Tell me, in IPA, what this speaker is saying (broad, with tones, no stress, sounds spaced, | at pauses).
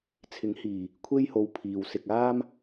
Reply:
t͡sʰ ɪ˨˥ ŋ h iː˨˩ | kʷʰ e˥ j h o˨˧ w pʰ iː˨ w s ɪ˧ k̚ aː˥ m